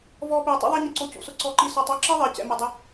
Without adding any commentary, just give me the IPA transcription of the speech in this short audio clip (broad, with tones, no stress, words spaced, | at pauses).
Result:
vɔː˧piː˨ tˤṵ˦ðˤɛ˦ɲɪ˧ǀo˧ cṵ˧sʊ˦ǀɔ˦˨ǃi˦ sɔ˧tˤ ɔ˦ǁi˦ðˤɪː˨ cɛ̰˧mʊ˧dˤɪ˦